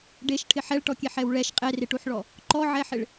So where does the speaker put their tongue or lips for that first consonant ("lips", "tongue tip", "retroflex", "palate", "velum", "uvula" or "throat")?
retroflex